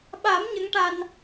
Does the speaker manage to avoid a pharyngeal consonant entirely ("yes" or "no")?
yes